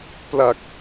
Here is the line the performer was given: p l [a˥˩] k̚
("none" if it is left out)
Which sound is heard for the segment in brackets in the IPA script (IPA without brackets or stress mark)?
a˨˩